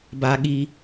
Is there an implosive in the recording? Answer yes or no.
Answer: yes